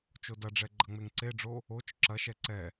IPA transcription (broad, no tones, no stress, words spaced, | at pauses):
t͡ʃodɐɖ͡ʐɛ ɡ͡ǃɐŋ͡meŋǀeɖ͡ʐo | ot͡ʃ ǁɐʃɛ ǀɛ